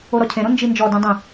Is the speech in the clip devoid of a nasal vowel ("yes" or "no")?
no